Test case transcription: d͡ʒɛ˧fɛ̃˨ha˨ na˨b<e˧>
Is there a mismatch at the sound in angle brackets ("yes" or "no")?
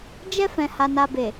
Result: yes